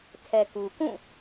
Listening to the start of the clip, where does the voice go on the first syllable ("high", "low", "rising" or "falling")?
low